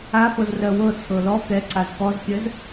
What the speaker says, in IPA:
afɤz rɜwɤt͡sʰɤ lɔ kɛǀaz kɔzkʲɜz

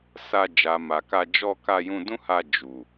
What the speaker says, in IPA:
sa˧ d͡ʒa˨ma˨ka˧ d͡ʒɔ˧ ka˧jũ˧dũ˦ha˧ d͡ʒu˨

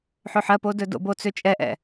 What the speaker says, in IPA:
ħøħɜpo dɵdo̰bo t͡søt͡ʃʼɛʔɛ̰

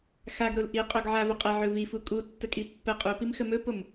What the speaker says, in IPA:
xaɡɾol ʔiqʼoɡ ʕavɵ qʼɛʕɵ vifu kʼutːəkʼi pːə qʼupimxə mɵpom

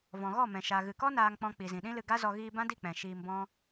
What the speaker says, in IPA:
vɔ̃˨ɣɔ˦˨mɛ̃˨ ʃa˨ɣɨ˨kɔ˦ naː˧ŋk͡pɔ̃˧ k͡pi˨zĩ˨ɗĩ˦lɨ˧ ɡa˦zɔ˧ ɣiː˧bã˦di˦˨ k͡pɛ̃˨ ʃiː˧mbɔ̃˦

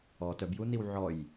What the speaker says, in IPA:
ɔ tœbjuniw ʕɔj

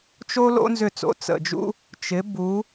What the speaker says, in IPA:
t͡ʃo˥lo̰˥ nzʏ˥˩t͡so̰˧ t͡sə̰˩d͡ʒṵ˥ | t͡ʃɪ˩˥ bu˩˥

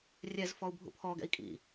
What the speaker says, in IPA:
rʲɛz fɔu̯bʱṵpʰɔ ɡɛ̰i̯kʼḭ

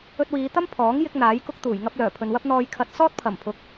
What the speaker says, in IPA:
ɵ˧t̚wiː˨˧t̪ɐ˥m pʰɔː˨˥ŋ jɪ˥k̚n̪aː˨˥jkʊ˥k̚t̪uː˨˩j ŋɐ˧p̚ lœː˨˩pʰɵ˨nwɐ˥p̚ n̪ɔː˨jkʰɐ˨˥t̚ sɔː˥t̚pʰɐ˨˩m pʰʊ˨˥k̚

